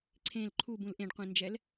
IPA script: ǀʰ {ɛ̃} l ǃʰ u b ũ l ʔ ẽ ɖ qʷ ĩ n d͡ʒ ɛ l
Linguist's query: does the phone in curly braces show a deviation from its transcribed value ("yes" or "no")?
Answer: yes